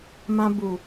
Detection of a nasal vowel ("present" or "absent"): present